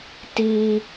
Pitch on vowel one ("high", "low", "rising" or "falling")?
high